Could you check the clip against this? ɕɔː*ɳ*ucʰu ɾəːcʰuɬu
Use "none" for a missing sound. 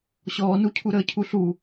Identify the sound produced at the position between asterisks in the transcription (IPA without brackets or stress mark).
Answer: n